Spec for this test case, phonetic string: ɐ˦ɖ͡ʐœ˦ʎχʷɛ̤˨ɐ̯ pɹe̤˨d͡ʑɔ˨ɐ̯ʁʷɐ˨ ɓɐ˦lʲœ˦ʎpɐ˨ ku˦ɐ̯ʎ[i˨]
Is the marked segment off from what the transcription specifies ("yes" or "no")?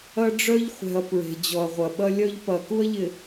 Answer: yes